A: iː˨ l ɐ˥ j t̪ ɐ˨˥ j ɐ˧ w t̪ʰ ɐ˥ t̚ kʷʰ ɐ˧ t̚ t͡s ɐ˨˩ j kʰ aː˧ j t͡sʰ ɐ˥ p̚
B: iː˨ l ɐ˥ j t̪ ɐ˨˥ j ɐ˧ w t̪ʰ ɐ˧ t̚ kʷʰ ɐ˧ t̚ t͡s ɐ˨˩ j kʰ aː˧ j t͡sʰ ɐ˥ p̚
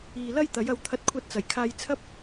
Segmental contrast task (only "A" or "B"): B